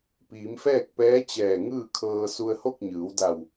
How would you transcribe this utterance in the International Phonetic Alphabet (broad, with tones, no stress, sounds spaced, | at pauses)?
p iː˩˧ m f ɛː˥˨ k̚ p ɛː˧˥ t͡ɕ ɛː˧˩ ŋ ɯː˥˨ kʰ ɤː˧ s u˧ ə̯ h o˥˨ k̚ ɲ ɯː˩˧ w d a˧˩ w